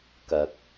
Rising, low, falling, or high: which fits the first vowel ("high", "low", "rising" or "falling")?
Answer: low